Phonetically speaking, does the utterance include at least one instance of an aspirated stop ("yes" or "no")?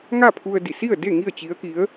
yes